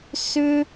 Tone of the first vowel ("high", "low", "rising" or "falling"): high